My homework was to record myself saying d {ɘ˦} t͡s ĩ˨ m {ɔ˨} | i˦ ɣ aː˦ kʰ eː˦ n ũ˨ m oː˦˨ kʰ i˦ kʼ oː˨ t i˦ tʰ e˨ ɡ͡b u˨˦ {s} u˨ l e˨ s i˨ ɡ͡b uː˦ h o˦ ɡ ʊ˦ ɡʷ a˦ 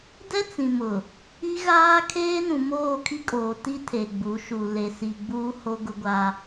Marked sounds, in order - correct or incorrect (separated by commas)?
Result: incorrect, incorrect, incorrect